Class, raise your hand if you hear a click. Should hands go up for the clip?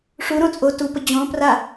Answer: no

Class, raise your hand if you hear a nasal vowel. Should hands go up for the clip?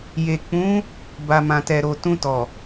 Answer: yes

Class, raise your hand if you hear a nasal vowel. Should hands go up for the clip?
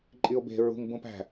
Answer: yes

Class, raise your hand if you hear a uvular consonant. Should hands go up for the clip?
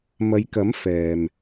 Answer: no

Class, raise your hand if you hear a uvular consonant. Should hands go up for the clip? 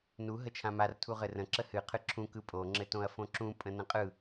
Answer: yes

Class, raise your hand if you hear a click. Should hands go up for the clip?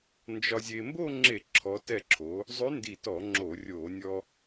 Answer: yes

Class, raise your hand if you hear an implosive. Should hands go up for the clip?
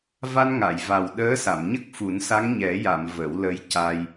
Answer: yes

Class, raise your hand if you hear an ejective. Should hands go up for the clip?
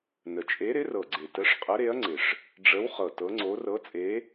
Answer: yes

